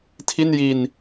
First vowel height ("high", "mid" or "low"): high